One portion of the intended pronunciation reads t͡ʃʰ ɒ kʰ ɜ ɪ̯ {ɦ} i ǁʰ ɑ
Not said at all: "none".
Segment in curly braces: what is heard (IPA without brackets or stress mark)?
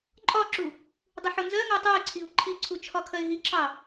ɦ